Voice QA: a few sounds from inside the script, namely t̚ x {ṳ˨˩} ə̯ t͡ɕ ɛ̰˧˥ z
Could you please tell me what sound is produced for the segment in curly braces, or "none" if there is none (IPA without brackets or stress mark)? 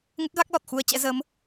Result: u˧